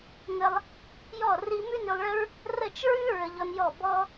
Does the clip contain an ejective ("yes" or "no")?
no